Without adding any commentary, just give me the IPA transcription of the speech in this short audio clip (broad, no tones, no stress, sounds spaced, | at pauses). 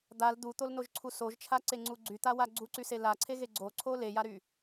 d̪ a l d̪ u t̪ o l n o ʒ ǀʰ u s o ʒ t͡ʃʰ a ǀ e ŋ͡ǀ u ɡ͡ǀ y t̪ a w a ɡ͡ǀ u ǀ y s e l a ǀʰ e ɣ e ɡ͡ǀ o ǀʰ o l e j a ɾ y